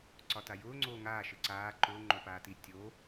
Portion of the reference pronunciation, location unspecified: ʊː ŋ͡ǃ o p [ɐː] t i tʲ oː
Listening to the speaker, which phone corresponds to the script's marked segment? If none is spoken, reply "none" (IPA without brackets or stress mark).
aː